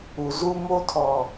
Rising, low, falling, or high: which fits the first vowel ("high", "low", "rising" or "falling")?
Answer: low